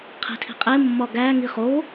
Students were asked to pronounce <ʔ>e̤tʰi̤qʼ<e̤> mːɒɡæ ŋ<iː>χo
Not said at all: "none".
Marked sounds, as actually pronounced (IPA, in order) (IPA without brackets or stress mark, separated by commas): qʰ, e, i